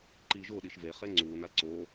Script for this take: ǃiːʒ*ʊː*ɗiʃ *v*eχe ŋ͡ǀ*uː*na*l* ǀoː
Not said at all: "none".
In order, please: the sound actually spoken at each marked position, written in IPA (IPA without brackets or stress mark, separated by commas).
ʊː, v, uː, l